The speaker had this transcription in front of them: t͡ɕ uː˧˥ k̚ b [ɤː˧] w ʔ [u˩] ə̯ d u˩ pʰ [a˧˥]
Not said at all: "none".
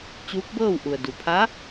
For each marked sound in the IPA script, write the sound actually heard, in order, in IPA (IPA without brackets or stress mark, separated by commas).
ɤː˥˨, u˩, a˧˥